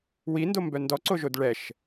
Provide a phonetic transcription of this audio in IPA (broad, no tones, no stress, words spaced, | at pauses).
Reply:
windombœ ndɔǀoʒod ɭɛʃ